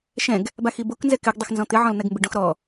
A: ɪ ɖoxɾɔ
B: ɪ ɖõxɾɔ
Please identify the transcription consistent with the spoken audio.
B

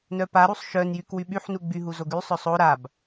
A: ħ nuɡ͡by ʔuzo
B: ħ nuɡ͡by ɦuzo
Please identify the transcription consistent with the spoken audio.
B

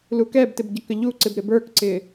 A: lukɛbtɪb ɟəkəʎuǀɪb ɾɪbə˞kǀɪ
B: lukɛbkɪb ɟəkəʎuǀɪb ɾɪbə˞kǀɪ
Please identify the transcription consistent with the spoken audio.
A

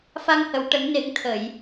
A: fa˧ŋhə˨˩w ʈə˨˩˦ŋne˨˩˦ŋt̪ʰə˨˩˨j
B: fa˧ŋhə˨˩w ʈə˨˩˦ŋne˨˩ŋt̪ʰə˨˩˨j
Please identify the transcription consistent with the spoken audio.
A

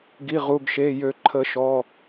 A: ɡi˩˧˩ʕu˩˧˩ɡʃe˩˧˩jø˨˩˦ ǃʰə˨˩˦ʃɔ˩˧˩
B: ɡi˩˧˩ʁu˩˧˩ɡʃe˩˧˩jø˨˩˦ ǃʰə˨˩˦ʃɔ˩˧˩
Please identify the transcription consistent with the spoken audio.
B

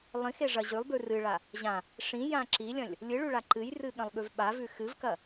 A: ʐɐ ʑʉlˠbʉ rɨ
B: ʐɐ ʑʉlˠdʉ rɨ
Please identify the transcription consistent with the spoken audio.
A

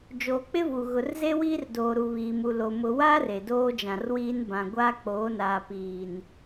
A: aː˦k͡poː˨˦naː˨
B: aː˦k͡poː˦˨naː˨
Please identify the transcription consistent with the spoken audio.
A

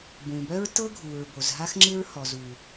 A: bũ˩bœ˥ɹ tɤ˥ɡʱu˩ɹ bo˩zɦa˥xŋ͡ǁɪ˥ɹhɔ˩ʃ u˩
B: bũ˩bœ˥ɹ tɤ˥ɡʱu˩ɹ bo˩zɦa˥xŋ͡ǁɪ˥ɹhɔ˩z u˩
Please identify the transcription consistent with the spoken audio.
B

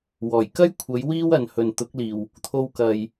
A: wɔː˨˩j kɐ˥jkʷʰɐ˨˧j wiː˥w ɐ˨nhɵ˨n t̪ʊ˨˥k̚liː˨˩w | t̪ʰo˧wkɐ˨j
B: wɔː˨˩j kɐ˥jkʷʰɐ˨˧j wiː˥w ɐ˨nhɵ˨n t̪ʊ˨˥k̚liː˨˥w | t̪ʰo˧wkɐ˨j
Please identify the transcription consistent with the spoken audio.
A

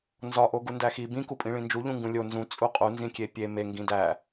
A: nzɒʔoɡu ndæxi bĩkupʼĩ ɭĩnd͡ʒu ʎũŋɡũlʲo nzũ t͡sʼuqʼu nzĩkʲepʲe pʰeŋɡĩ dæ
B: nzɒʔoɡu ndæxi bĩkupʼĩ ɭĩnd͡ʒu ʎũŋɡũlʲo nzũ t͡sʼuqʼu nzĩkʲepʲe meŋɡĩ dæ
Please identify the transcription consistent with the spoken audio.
B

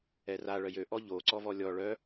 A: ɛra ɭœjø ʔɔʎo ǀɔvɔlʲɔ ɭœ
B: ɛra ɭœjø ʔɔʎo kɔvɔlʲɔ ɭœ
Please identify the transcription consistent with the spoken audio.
A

